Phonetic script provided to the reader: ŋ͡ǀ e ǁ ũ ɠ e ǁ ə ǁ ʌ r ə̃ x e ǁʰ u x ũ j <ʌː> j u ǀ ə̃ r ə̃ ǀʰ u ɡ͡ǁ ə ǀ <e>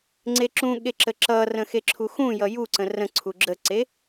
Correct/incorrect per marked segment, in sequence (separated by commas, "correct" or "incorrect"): incorrect, correct